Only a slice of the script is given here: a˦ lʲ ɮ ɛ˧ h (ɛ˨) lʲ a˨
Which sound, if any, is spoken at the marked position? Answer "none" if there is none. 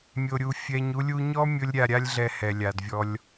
ɛ˨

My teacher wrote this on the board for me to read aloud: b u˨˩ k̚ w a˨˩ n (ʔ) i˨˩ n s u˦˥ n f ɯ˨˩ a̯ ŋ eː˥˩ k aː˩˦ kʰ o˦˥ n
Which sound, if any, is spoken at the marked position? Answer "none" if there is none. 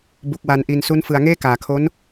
ʔ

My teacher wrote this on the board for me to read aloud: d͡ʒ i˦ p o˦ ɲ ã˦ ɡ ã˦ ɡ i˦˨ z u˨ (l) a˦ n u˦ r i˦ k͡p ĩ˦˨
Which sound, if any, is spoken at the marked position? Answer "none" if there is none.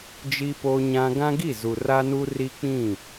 r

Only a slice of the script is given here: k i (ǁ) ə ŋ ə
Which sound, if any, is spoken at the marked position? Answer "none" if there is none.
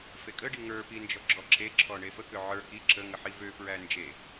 ǁ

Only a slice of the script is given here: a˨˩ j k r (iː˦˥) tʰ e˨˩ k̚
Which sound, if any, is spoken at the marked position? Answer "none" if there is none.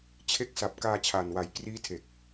iː˦˥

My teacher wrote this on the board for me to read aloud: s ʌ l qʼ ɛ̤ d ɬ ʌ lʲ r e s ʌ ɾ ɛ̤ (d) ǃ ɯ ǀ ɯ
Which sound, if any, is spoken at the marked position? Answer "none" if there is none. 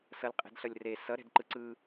d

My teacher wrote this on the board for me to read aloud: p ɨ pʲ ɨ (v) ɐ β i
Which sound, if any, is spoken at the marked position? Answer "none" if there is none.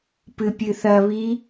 θ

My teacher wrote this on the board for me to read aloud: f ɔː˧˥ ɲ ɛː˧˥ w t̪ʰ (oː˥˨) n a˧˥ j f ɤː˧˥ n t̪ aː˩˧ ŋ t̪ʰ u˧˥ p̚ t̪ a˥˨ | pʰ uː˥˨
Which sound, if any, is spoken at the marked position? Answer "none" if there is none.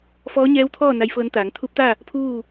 ɔː˥˨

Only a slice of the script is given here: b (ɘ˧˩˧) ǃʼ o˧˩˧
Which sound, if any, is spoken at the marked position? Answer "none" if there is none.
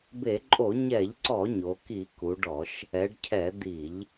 e˧˩˧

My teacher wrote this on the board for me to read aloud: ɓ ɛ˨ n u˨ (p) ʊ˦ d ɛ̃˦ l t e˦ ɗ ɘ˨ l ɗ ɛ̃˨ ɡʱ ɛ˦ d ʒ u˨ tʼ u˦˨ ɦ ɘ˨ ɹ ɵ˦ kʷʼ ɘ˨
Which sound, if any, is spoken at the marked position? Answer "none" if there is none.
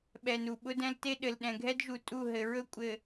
ɓ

